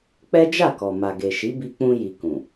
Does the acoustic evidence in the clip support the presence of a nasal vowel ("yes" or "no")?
yes